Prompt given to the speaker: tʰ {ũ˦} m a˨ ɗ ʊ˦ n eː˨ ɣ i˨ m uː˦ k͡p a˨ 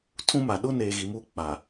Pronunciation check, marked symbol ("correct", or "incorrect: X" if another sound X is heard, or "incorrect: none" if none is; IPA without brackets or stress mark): correct